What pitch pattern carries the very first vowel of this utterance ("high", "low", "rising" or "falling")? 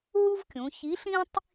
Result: high